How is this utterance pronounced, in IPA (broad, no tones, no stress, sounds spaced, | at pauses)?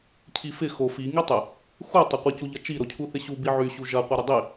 cʰ i f ɪ x o f i ŋ i tˤ ɪ | x u tˤ ɐ qʷ ɪ c u ʎ ɐ t͡ʃ i ɾ o cʰ u θ ɪ ɕ u b i ʕ y ɕ u ʒ ɐ qʷ i ɾ ɪ dˤ i